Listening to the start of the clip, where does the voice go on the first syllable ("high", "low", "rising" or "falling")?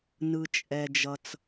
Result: low